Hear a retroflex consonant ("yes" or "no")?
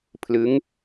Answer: no